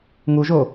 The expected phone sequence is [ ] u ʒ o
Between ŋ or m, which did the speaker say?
ŋ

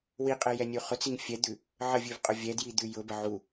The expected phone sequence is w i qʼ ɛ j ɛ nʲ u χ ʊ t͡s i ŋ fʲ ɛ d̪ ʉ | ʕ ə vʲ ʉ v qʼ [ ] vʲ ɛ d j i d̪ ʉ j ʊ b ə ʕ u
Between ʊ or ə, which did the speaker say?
ʊ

